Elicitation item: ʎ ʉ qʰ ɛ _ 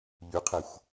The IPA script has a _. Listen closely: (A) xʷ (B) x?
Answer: A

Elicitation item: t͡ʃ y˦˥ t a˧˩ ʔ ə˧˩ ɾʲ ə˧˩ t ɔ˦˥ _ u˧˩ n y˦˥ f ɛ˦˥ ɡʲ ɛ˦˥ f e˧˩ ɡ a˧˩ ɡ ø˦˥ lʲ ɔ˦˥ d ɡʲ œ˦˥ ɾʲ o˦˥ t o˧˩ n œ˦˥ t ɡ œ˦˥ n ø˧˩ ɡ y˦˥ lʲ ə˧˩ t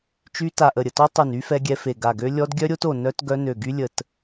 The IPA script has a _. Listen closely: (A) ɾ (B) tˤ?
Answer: B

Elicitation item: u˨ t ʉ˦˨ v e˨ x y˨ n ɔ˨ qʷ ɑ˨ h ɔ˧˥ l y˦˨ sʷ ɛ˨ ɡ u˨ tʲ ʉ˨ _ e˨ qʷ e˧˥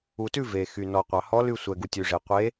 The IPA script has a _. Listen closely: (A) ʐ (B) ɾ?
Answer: A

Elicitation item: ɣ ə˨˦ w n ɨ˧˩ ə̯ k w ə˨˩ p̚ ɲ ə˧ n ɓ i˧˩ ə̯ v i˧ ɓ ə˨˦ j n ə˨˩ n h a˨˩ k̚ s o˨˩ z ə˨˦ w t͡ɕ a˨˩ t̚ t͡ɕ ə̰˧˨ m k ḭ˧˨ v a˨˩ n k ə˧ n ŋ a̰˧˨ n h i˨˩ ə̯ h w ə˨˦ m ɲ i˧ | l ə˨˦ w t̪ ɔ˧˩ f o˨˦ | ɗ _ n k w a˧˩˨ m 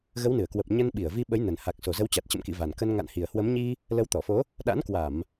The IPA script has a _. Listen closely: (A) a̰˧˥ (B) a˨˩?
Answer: A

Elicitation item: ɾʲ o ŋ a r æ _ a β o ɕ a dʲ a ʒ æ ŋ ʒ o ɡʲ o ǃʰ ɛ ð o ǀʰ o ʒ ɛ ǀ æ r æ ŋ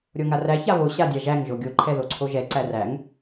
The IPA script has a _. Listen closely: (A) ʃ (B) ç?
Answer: B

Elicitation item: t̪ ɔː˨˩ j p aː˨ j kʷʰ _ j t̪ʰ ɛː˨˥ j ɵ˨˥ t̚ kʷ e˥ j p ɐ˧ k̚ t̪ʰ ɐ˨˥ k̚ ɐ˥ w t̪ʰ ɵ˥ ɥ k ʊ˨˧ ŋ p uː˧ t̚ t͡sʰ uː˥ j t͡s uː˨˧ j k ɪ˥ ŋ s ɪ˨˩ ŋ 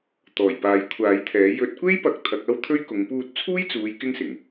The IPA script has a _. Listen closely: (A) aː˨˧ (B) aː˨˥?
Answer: B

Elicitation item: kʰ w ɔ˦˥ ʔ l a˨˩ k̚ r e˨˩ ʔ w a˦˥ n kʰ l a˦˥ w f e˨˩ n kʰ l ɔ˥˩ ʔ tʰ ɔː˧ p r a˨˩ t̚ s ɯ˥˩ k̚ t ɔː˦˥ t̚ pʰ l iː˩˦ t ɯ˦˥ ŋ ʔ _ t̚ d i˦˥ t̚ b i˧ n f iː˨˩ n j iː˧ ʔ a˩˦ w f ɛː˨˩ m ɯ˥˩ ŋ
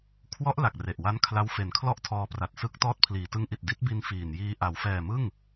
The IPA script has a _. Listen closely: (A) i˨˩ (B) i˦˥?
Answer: A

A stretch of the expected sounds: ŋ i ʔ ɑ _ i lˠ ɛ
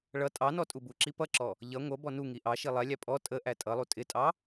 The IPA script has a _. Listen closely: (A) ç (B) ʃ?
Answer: B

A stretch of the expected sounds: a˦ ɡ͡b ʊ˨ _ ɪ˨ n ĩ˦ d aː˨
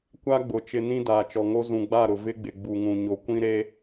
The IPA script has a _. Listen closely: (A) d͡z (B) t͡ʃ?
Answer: B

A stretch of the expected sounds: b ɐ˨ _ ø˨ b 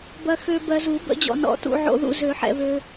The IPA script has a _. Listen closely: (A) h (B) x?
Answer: B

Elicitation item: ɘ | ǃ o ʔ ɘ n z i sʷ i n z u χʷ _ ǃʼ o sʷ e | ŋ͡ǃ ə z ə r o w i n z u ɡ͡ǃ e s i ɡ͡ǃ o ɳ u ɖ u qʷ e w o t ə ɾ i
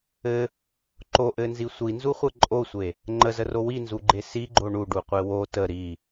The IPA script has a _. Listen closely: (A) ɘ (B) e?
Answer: A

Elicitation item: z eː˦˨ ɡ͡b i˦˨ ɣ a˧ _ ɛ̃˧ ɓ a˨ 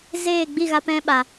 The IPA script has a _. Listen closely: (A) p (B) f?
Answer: A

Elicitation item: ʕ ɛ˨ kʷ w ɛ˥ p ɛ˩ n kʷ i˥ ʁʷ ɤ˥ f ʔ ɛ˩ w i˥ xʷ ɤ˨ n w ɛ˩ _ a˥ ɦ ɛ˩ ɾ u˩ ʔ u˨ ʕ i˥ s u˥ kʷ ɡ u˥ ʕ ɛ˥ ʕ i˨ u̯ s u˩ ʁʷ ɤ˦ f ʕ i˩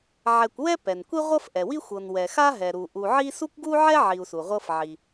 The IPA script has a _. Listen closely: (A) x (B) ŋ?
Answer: A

